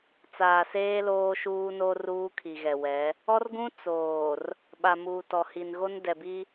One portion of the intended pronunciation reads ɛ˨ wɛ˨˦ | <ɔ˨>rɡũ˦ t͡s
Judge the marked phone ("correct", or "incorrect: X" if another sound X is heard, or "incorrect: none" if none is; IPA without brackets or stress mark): incorrect: ɔ˦